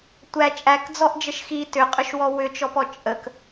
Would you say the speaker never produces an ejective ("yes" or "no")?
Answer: no